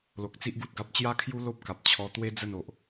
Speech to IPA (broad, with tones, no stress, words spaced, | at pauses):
lo˨k̚t͡si˦ʔɡu˨t̚ɡa˦p̚ t͡ɕja˥˧kʰju˦ lo˦p̚ka˨p̚t͡ɕʰɔ˧ t̪we˦ d͡zə˥˧no˨ʔ